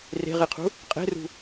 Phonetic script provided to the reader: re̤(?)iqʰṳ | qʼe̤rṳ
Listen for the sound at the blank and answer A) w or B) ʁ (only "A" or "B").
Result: B